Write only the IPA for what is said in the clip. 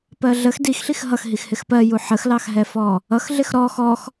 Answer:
p ɜ ɮ ə x d i x ɬ i x ɦ ʌ x ɦ i x h ɪ x p ɜ j u ħ ə x l ɑ x ɦ ɛ f ɔ | ʌ x ɮ ɪ x ɾ ɔ x ɔ x

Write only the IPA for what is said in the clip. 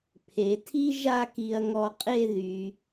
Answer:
pʰ e˩˧ tʰ i˥ ʒ a˥˧ k i˧ ɐ̯ ŋ ɔ˧ qʼ e˥˧ ð y˩˧

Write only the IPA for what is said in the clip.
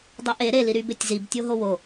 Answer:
dˤ o ʔ e ɾ e l i ɾ y b e tʲ z i b tʲ o ɦ o w o

